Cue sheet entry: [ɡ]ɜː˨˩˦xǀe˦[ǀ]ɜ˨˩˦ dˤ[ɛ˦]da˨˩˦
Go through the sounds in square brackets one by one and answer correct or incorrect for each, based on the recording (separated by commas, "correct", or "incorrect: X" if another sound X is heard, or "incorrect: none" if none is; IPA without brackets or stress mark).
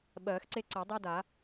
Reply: incorrect: ɓ, correct, correct